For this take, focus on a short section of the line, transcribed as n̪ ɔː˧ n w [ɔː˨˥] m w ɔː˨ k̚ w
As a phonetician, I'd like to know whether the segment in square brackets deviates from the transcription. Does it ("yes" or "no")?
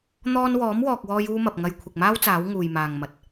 no